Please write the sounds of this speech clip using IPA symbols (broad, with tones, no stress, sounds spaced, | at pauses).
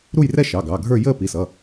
ɾ u˥˧ j r ɛ˥˧ ʃ ɑ˩˧˩ ɡ ɑ˩˧˩ ɡʱ ə˞˥˧ j əː˥˧ p i˩˧˩ s ʌ˩˧˩